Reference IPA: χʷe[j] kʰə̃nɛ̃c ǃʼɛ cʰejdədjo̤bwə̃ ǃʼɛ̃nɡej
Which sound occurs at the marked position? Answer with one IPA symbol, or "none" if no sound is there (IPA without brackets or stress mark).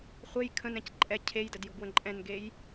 j